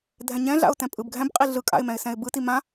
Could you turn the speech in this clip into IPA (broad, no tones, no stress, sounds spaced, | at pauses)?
dʱ ɛ̃ ɲ ɛ̃ ɮ a̰ ʊ̯ t ɛ̃ pʼ ɯ b ɡʱ ɛ̃ b qʼ i ɮ ɯ kʼ a̰ ɪ̯ m ɛ̃ ɪ̯ s ɛ̃ ɪ̯ b ɯ t i m ã